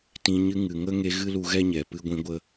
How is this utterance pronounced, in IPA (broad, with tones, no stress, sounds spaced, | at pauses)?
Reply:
t ĩ˨ ɲ ɨ˧ ŋ ɨ˨ ŋ ə˦ ŋ e˧ ɣ ɨ˦ l u˧ ɣ ɛ˦ ɲ ɛ˨ p ɨ˧ ɡʷ ĩ˧ ɡʷ ə˦